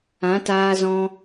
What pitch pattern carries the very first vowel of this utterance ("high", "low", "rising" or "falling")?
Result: rising